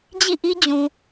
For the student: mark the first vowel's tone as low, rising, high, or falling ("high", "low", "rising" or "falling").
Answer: falling